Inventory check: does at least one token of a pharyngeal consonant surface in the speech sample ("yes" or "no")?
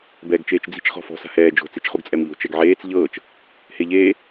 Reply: yes